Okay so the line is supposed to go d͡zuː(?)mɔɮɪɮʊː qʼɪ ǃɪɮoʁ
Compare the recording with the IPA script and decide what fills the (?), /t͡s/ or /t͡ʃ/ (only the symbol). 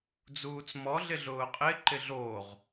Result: t͡s